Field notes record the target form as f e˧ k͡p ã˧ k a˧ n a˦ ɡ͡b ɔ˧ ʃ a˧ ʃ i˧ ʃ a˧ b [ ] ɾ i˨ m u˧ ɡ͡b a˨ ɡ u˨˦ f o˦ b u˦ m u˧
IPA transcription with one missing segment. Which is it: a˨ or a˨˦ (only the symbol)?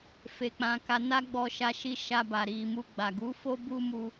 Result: a˨